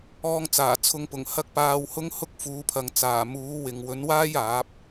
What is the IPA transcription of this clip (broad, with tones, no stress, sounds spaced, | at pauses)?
ɔː˧ ŋ t͡s aː˨˩ t͡sʰ ʊ˨˧ ŋ p ʊ˨˩ ŋ h ɐ˥ k̚ p aː˧ w h ʊ˥ ŋ h ʊ˥ k̚ f uː˨˥ pʰ ɐ˨ ŋ t͡s aː˨˩ m uː˨˥ w ɪ˨ ŋ w ɵ˨˥ n w aː˥ j aː˨˥ p̚